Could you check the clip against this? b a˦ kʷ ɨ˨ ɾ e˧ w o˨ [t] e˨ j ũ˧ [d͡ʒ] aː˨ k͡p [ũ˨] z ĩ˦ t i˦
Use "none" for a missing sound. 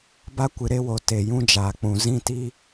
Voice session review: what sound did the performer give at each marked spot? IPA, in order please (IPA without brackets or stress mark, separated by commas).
t, d͡ʒ, ũ˨